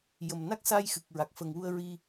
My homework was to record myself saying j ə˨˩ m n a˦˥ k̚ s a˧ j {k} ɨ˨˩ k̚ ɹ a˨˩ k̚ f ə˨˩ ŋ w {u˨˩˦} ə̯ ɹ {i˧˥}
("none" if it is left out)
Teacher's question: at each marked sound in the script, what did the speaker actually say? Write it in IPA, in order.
x, u˧, i˧

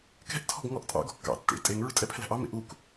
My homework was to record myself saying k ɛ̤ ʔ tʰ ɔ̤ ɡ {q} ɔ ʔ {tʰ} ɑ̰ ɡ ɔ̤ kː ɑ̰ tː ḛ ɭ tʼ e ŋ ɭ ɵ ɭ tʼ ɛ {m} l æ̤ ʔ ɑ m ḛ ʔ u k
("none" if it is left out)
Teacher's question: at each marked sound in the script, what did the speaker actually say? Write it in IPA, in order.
ŋ, tʼ, pʰ

